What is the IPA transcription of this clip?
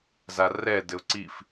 z a r ɛ d ɘ ʊ̯ ǀ i f

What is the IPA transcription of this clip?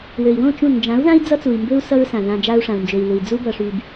w ø˨ i̯ w õ˦˨ t͡ʃ ũ˦˨ n d͡ʒ ã˨˦ u̯ ð ã˦ i̯ d͡z ʌ˦ t͡s u˨ i̯ m b ø˦ u̯ s ʌ˦ ɹ s ã˨ ð ã˧ d͡ʒ a˧ u̯ ʂ ã˨ u̯ n d͡ʒ ø˨ i̯ l u˨ i̯ d͡z u˦ b ʌ˧ ʂ y˧ b

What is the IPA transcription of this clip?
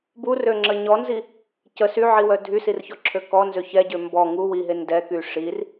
b u r ø ŋ͡ǁ ə ɲ ɔ n z i | c ə s y ʕ i w œ dʱ y s i r ç ɔ ǁʰ ø k ɔ n z ø ç ɛ ɟ ø m b ɔ ŋ u w i ɦ e n d ɛ k y ʂ i r

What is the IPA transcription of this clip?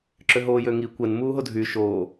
ǁ ø ɦ oː j ø ŋ i kʷ ɛ n m uː ɦ o dʱ y ʃ oː

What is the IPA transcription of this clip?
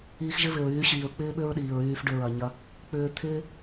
iː˧ x ʒ ɪ˦ v ɪ˨ ɹ yː˨˦ ɕ iː˨ ɹ k͡p ɪː˦ ɓ ʏ˦ ɹ ɗ iː˨ ɹ yː˧ f ɖ ʏ˧ ɹ ɐ˨ ɲ ɐ˧ | k͡p ʏː˧ t̪ʰ ɪː˦

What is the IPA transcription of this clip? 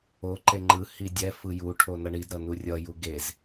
o ǃ e ŋ͡ǃ ɯ h i dʲ ɛ f ɯ j u ʈʰ o n ʌ ɳ i d ɾ ʌ n u rʲ ʌ j u ɡ e z

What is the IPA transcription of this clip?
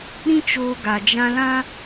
ɾ ĩ˦ t͡ʃ oː˧ ɡ a˨ d͡ʒ ã˧ l ã˦

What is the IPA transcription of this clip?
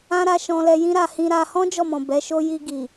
ã˦ ɾ a˧ ʃ ɔ̃˧ l ɛ˧ j ĩ˦ ɾ a˧ h ĩ˧ ɾ a˧ h ɔ̃˦ d͡ʒ ɔ˦˨ m ɔ̃˨ b ɛ˨˦ ʃ o˦ j i˧ ɡ i˨

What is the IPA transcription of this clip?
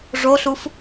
ʐ o ɬ u f

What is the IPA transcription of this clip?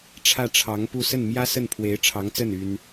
ʈ͡ʂʰ ä˥˩ ʈ͡ʂʰ ɑ˧˥ ŋ p u˥˧ s ə˥˩ n m j ä˥ s ə˥˩ n pʰ w e˧˥ ɪ̯ ʈ͡ʂʰ ɑ˧˥ ŋ t͡s ə˥˩ n y˥ n

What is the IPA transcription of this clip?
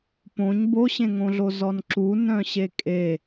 p õ ɲ b o ɕ ẽ ŋ õ ɮ o z ɔ n ǁ u n œ̃ ɕ e kʼ e

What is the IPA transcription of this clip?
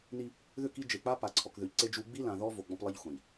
n i˦ | ð ʏ˦˨ k i˦ d͡ʒ e˨ k͡p a˦ p a˨ ǀʰ ɔ˨ k ð ʏ˨ ʎ ǀ e˦ d͡ʒ u˦ ɡ͡b i˦ l ã˨ ð ɔ˦ v o˨ ɡ͡b ɔ̃˦ p lˠ i˦ ʎ xʷ ã˨ ʎ

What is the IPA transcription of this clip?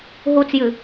ɦ u t͡s j ɨ

